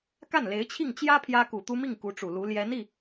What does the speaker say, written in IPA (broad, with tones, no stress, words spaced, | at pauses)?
ka˥˩nle˧˥ɪ̯t͡ɕʰi˥˩ŋ t͡ɕjä˥ pʰjä˥ku˨˩t̪u˥ mi˥˩ŋ ku˧˥ʈ͡ʂu˨˩lu˧˥ ljɛ˧˥ni˥˩